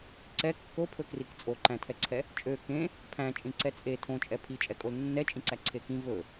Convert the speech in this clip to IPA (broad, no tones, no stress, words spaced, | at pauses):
ǀɛ kːopʰɵkrik t͡sʼoǃæ̃tʰɛǀʰɛ | t͡ʃʼø kẽ | pʰæ̃t͡ʃʼĩǀɛ t͡sʼe tʰõt͡ʃʼɛ pʰit͡ʃʼɛkʼol nːɛt͡ʃʼĩǀæǀʰe kĩ vɵ